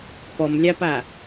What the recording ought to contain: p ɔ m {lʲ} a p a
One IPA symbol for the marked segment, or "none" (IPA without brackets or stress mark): lʲ